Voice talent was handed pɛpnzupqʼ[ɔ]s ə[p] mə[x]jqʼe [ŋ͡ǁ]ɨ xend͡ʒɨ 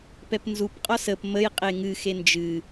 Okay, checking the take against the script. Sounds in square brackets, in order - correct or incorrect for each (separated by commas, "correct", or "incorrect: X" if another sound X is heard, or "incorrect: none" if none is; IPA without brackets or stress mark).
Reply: correct, correct, incorrect: none, incorrect: ŋ